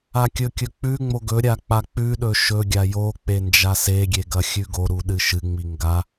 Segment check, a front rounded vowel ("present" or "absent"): absent